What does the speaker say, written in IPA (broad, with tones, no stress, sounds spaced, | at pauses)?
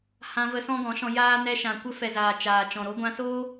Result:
h ã˧ v ə˧ s ɔ̃˦ ɡ ɔ̃˨˦ ʃ ɔ̃˧ j aː˦ n ɛ˧ ʃ ã˨ kʷ ə˧ f ɛ˨ z aː˨ t͡ʃ aː˨ t͡ʃ ɔ̃˨ ɾ o˧ ɡʷ ã˧ s oː˦